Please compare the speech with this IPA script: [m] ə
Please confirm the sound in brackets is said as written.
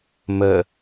yes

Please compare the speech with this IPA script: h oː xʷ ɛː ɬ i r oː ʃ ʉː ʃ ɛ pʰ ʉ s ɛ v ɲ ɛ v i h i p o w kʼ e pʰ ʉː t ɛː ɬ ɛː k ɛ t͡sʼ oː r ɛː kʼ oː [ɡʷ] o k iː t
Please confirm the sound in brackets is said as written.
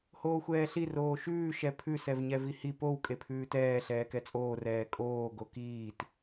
no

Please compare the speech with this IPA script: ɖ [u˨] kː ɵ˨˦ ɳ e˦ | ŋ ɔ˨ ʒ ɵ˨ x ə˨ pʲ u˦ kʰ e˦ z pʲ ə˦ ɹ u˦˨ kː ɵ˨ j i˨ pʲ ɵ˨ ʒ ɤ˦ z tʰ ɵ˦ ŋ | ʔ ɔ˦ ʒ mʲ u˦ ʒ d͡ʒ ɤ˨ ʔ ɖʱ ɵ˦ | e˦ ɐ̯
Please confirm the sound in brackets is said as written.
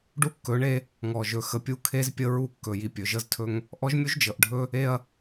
no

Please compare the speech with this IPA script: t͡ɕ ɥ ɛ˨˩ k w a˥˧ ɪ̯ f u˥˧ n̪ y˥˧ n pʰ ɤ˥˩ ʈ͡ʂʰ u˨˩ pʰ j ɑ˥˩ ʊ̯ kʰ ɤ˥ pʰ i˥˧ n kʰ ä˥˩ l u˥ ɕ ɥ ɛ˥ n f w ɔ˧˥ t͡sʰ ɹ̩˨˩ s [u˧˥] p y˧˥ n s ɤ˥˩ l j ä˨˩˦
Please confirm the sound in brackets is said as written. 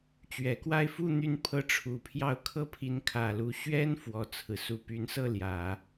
yes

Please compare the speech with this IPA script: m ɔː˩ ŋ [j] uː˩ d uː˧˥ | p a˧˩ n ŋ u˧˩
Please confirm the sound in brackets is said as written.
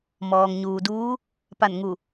no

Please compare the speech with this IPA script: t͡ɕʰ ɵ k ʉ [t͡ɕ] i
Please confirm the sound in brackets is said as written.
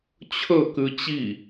yes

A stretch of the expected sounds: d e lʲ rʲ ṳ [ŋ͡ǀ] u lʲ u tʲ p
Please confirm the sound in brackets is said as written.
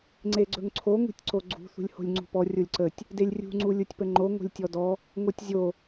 yes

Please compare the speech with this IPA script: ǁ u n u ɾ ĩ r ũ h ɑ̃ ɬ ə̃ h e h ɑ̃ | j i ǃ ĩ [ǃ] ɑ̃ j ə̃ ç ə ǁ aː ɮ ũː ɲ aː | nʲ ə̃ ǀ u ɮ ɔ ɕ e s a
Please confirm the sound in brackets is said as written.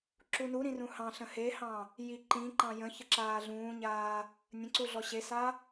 yes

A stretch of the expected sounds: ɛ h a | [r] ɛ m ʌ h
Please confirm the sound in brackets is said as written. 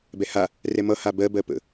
yes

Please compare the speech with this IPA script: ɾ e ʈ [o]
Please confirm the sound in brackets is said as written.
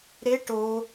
yes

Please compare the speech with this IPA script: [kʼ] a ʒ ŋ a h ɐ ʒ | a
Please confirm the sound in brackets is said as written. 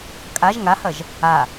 yes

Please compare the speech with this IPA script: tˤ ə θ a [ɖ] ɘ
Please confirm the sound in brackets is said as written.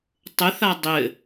no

